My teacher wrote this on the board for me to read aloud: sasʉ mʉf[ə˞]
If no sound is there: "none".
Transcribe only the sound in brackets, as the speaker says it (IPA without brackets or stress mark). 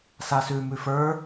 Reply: ə˞